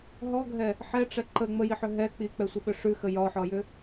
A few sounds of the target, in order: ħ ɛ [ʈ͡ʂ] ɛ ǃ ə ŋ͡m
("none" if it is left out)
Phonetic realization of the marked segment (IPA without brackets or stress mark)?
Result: ʈ͡ʂ